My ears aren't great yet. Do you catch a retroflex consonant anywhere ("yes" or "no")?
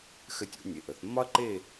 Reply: no